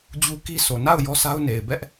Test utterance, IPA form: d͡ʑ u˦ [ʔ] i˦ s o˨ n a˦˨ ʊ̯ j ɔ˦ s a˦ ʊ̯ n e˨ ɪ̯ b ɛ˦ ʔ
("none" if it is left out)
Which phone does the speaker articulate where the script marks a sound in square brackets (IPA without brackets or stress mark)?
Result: k